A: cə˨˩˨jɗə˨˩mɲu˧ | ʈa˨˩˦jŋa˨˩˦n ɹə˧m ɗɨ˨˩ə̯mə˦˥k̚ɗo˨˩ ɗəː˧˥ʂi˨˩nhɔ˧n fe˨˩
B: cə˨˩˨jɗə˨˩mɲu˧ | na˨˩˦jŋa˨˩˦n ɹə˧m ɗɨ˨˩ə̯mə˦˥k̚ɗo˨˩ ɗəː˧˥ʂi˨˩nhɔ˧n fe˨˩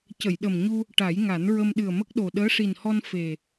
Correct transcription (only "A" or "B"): A